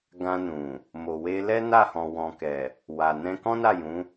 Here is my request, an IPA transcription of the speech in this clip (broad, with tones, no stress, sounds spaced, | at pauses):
ɡ ã˧ n ũ˨ | m o˨ w e˧ l ɛ˦ n a˦˨ h ɔ̃˨ w ɔ̃˨ k ɛ˨ | w a˨ n ɛ̃˧ k ɔ̃˦ n a˦˨ j ũ˨˦